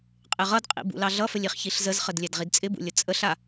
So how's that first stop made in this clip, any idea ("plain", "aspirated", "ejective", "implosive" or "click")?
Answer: ejective